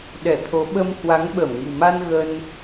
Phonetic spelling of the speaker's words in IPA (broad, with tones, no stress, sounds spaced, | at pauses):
ɗ ɛ˧˩ t̪ʰ o˨˦ ɓ ə˧ m h w a˨˦ ŋ ɓ ə˧˩ m ŋ ṳ˨˩ m a˧ n ɣ ə˧ n